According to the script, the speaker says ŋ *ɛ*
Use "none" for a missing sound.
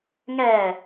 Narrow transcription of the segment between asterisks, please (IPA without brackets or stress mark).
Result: ɛ